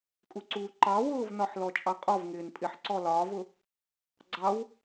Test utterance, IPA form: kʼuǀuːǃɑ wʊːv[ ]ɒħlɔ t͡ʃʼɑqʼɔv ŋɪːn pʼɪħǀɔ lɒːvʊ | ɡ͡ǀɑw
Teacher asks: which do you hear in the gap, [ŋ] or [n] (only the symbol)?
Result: n